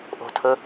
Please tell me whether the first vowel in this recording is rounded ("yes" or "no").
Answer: yes